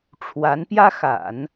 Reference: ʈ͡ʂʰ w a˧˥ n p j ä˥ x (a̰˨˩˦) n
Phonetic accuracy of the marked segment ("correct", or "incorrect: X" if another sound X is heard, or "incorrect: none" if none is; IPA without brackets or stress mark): correct